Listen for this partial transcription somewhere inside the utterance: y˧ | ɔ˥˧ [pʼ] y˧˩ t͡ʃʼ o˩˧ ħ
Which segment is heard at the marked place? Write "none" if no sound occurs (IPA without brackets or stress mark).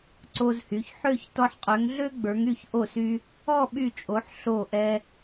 ɓ